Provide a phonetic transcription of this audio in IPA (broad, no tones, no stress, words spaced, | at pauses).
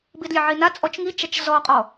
bidlʲeʕina t͡sʼɔt͡ʃŋit͡ʃat͡ʃ zɔqʼɔ